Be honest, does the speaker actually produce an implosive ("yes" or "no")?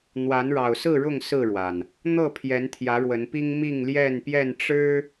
no